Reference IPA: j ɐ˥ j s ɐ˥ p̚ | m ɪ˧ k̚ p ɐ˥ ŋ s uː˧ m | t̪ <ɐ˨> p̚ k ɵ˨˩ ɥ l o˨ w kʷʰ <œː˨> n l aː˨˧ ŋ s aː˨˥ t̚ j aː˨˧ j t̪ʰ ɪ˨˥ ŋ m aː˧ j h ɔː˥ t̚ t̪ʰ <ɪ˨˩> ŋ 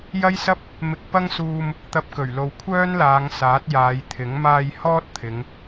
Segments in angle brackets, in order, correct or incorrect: incorrect, incorrect, incorrect

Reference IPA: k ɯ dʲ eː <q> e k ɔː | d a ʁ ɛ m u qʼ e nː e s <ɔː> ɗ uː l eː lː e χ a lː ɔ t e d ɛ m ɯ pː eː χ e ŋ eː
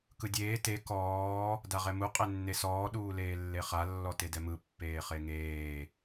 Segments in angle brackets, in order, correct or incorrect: incorrect, correct

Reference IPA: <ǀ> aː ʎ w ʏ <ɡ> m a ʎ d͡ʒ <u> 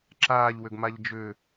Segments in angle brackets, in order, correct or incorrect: incorrect, correct, incorrect

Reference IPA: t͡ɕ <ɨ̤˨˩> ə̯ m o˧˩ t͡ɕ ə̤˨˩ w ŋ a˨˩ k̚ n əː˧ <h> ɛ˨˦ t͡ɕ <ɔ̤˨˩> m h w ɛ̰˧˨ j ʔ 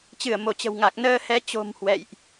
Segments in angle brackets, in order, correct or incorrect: incorrect, correct, incorrect

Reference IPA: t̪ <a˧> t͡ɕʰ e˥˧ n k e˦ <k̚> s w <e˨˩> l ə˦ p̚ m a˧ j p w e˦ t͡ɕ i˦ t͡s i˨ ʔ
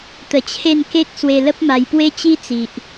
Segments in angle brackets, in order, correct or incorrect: incorrect, correct, incorrect

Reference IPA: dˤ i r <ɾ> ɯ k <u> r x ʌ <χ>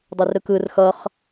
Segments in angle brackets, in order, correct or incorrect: correct, incorrect, correct

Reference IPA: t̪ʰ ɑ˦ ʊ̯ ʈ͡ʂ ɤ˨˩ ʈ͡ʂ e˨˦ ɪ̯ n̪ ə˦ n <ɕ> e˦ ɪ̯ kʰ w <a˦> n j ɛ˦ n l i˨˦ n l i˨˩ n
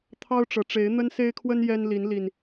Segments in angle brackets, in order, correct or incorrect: incorrect, incorrect

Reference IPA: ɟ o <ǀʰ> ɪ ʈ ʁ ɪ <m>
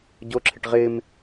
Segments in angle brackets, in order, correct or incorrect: incorrect, correct

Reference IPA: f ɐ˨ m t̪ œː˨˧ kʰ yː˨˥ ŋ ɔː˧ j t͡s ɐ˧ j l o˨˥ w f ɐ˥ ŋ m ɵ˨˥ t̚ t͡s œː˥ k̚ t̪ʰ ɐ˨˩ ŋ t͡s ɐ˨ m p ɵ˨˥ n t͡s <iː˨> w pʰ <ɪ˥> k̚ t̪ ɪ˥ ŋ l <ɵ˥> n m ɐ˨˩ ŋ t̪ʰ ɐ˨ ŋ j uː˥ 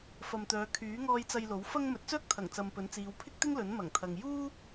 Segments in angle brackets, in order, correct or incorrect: incorrect, correct, incorrect

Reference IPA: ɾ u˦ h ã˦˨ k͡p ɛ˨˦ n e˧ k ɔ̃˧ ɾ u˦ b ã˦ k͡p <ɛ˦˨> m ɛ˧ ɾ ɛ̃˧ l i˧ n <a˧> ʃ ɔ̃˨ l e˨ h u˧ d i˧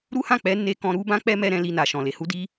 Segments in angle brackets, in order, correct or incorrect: incorrect, incorrect

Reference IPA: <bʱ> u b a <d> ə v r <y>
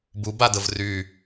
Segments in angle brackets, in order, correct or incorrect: incorrect, correct, correct

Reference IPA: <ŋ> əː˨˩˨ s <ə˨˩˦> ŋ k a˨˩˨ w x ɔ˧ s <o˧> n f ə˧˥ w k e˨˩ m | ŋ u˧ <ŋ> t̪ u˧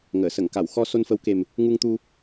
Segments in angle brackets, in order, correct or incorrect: correct, incorrect, correct, correct

